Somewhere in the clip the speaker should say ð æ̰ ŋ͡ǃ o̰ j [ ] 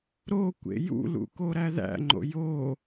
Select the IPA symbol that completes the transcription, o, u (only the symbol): o